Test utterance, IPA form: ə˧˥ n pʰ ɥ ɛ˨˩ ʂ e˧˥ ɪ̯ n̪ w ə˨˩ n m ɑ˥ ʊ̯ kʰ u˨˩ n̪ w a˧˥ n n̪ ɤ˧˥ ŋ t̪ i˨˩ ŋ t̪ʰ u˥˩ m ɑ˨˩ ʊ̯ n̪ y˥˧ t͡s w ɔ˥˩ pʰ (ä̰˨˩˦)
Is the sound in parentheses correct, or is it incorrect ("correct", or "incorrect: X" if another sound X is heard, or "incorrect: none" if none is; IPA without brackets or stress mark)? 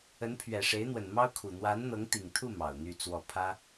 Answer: incorrect: ä˥